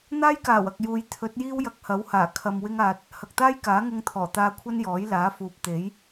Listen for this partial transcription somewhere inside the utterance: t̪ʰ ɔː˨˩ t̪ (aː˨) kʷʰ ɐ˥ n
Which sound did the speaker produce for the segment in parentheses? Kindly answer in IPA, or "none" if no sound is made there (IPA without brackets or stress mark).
aː˧